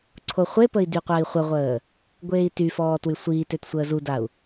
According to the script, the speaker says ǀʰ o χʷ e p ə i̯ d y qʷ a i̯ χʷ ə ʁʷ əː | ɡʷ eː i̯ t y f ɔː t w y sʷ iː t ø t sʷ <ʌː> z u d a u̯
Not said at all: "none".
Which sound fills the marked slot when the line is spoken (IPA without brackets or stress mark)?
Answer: əː